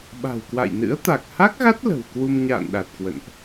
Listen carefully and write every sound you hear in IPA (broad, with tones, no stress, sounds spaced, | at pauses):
ɓ a̤˨˩ w k w a̰˧˨ j n ɨ̰˧˥ ə̯ t̪ a˨˩ k̚ h a˦˥ k̚ ɣ a˦˥ t̚ l ə̤˨˩ w k w u˧ m ɲ a̰ː˧˨ n ɗ a˨˩ t̚ k w ə̰˧˨ n ʔ